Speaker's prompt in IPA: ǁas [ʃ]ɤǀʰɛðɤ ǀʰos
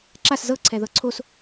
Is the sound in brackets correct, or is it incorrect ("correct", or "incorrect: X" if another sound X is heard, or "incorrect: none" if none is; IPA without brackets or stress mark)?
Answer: incorrect: z